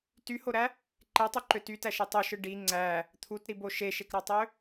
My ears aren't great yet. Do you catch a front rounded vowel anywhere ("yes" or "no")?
yes